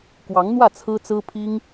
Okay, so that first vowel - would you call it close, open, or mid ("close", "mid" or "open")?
open